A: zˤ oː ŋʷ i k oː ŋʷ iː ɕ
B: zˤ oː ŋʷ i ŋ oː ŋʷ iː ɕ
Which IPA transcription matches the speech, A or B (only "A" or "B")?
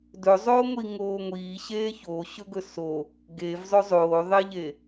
B